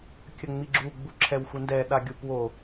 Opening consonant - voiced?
no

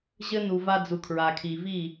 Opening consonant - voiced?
yes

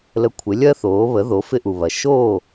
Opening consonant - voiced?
yes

